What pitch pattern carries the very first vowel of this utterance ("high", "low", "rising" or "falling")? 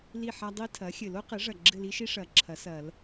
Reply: falling